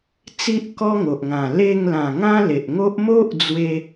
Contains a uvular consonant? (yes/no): no